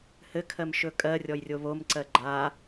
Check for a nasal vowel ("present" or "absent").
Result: absent